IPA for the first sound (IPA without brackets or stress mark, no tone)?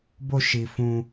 b